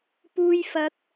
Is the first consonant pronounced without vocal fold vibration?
yes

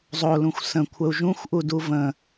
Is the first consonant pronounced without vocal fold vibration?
no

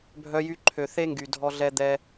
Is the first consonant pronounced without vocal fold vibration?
no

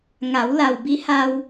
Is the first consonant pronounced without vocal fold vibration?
no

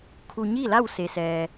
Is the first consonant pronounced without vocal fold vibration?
yes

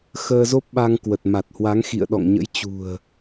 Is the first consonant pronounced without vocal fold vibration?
yes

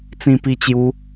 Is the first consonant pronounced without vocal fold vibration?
yes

